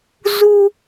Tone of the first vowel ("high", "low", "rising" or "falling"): high